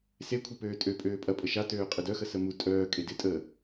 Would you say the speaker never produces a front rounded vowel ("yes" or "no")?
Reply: no